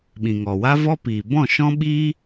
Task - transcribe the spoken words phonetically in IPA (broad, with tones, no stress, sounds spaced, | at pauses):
ɓ ĩ˨ ŋ ɔ˨ w a˦ v ɔ˦ p iː˨ b ɔ̃˦˨ ʃ ɔ̃˦ ɓ iː˦